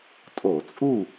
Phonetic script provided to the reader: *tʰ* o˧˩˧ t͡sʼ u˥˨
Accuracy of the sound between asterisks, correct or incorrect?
incorrect: tʼ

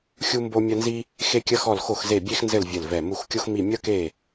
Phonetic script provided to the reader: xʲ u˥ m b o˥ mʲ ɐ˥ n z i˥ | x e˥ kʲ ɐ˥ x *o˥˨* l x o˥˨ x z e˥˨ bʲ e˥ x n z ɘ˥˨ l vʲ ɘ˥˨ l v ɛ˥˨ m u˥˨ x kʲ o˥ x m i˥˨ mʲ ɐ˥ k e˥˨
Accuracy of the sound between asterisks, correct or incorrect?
incorrect: ɔ˥˨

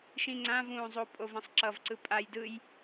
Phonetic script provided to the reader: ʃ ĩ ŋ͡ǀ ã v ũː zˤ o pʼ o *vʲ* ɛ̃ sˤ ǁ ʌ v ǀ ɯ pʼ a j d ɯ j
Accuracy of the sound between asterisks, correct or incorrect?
incorrect: v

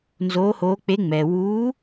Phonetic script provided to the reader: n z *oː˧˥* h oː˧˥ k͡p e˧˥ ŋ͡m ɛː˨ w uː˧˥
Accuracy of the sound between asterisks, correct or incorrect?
correct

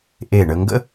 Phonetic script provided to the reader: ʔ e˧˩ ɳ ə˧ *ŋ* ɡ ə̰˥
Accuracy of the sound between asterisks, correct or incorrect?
correct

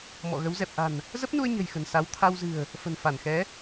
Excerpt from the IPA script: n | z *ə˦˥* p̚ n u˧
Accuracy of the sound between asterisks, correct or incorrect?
correct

